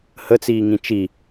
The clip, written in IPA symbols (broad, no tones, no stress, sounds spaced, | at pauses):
h ə t͡s iː ŋ ĩ t͡ʃ i